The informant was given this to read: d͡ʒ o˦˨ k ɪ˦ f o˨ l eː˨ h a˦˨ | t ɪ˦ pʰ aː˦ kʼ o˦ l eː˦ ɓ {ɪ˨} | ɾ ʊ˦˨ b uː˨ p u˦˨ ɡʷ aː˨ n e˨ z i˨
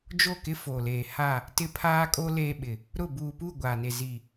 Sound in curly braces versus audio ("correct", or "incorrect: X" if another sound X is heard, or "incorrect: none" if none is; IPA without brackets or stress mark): correct